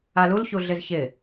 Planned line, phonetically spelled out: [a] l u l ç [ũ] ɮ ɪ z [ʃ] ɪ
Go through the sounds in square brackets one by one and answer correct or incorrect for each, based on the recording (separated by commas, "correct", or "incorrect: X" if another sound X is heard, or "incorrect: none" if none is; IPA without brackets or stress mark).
correct, incorrect: u, incorrect: ç